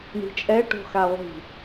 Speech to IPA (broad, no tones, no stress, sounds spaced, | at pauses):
ɳ i̤ t͡ʃʼ ɛ ʈ o̤ x a ʁʷ i̤